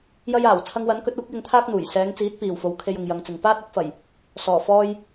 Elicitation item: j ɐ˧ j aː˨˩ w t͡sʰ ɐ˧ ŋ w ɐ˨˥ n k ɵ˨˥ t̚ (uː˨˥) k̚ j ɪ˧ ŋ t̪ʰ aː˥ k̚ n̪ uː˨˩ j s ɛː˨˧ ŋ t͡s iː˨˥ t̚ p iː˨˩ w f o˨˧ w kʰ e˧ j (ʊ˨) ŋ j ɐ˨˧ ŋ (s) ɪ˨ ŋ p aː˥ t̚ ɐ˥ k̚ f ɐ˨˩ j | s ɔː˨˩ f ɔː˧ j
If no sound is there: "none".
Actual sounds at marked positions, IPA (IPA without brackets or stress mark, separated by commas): uː˨˥, ʊ˨, t͡s